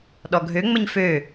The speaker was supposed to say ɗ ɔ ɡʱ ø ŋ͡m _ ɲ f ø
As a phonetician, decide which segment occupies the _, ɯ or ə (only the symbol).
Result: ə